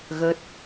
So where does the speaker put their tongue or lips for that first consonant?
velum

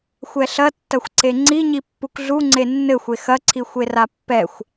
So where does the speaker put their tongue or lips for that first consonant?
velum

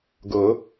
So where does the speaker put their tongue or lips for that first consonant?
velum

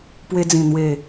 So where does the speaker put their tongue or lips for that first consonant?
lips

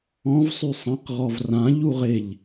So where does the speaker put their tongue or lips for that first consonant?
lips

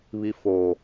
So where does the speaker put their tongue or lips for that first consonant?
lips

